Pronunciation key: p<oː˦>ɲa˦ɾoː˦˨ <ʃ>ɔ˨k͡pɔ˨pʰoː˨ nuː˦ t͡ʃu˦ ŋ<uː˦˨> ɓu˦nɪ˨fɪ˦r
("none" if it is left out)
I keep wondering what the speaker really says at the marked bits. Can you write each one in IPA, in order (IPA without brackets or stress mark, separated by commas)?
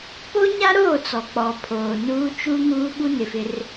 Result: o˦, t͡s, uː˦